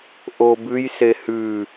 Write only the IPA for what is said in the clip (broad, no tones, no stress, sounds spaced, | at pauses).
ʔ o b ʉ j s e h ʉ